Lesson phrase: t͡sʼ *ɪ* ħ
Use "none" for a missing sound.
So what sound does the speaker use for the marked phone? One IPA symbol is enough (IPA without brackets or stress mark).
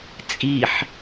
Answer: i